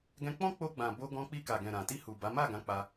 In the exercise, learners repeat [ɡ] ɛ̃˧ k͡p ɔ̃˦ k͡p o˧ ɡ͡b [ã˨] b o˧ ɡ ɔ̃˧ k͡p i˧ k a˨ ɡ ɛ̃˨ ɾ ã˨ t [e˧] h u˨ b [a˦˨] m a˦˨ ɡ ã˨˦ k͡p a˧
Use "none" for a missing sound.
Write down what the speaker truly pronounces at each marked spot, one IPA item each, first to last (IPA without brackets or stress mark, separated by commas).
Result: ɡ, ã˨, i˧, a˨˦